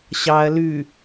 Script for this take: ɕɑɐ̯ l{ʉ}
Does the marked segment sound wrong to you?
no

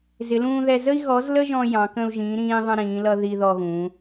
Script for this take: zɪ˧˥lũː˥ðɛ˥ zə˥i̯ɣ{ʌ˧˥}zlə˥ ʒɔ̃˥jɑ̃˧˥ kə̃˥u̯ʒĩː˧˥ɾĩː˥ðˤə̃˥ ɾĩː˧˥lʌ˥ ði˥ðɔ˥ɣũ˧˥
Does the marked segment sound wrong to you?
yes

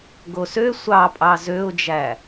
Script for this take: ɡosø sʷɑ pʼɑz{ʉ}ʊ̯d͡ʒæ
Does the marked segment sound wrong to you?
yes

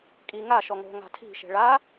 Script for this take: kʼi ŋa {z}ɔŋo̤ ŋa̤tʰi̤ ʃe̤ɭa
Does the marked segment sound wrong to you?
yes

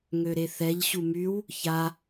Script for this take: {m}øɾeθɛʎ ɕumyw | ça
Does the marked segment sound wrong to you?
yes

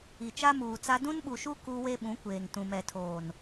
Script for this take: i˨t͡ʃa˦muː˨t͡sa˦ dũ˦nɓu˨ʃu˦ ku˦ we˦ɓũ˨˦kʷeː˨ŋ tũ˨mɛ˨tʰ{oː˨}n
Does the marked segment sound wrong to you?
no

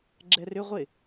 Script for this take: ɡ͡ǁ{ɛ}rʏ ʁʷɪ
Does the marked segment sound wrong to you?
no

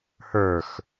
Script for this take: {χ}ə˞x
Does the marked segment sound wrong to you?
yes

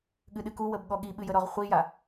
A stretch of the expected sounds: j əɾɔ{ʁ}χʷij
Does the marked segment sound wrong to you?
no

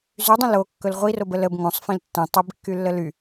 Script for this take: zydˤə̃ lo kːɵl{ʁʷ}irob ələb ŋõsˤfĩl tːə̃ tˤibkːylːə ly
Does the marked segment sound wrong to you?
no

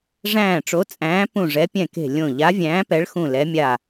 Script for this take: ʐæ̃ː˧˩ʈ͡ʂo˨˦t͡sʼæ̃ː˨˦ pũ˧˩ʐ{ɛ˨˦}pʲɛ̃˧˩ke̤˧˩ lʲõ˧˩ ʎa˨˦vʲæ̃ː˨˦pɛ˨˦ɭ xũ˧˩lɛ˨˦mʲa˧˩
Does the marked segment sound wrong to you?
no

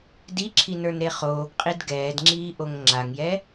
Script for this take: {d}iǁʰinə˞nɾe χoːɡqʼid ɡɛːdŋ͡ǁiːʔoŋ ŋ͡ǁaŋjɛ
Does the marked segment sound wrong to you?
no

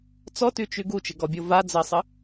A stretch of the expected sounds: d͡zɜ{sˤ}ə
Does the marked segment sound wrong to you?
no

